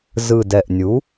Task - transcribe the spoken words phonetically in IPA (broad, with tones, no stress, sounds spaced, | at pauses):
z ɯ˨˩ d ɛ˨˩ ʔ nʲ u˩˥